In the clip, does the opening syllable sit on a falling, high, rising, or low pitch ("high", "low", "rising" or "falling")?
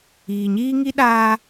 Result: low